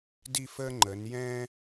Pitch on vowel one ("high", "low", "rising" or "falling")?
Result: falling